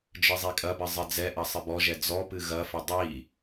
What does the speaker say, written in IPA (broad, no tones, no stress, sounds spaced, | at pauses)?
d͡ʒ ɨ zˤ i kʼ ɐ b ɘ zˤ ɨ d͡z ɛ ʔ ɐ sˤ ɨ b ɔ ʒ ɛ d͡z ɔ p ɨ ɣ ɐ f ɘ dˤ i